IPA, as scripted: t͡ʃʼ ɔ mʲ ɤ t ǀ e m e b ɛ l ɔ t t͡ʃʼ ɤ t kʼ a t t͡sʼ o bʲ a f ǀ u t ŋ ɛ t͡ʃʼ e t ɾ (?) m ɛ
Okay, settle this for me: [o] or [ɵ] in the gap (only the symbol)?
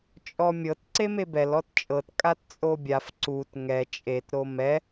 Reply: o